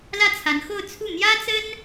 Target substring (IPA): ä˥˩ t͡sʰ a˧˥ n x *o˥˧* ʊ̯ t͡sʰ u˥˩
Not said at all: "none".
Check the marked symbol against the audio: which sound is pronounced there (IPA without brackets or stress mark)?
o˥˧